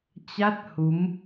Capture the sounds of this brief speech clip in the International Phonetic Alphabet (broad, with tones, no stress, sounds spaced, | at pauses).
t͡ɕ a˦˥ t̚ h u˨˦ m